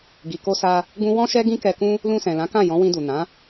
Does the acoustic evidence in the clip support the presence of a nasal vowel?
yes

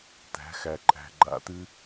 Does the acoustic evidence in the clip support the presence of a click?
yes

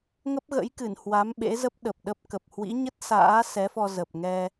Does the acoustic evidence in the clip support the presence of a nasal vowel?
no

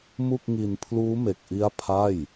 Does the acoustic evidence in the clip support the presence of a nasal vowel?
no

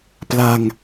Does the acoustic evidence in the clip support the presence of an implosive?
no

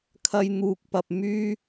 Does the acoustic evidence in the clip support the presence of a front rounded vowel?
yes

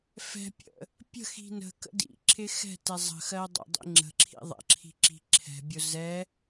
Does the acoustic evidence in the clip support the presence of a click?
yes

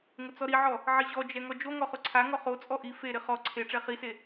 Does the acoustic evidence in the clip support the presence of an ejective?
yes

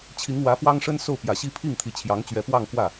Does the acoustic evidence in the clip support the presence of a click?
no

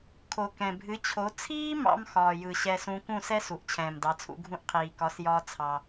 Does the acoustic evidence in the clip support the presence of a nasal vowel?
yes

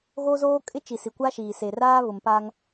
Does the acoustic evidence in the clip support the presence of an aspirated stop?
no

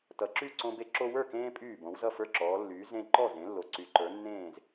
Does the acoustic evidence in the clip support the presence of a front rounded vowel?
yes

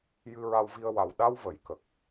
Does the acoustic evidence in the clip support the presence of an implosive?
yes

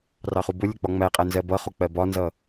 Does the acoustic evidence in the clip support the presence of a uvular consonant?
yes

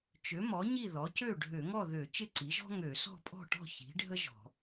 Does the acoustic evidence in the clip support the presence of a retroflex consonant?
yes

